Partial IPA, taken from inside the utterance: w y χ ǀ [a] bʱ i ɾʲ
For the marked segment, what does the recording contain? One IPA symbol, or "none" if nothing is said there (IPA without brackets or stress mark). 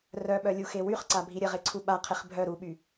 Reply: a